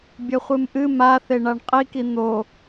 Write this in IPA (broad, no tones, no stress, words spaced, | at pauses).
bʲɘχʷɨmʔɨ ma θeɳaɳqʼiki n̪o